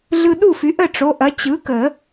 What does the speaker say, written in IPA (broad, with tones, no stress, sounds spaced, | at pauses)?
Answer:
ɮ ɯ˧ ɗ u˥˩ f y˩˥ ʔ ə˥˩ ʈ͡ʂ o˩˧˩ ʔ ɐ˩˥ t͡ɕ ɯ˩˥ k ə˨˩˦